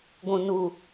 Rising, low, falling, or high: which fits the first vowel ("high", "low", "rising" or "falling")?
low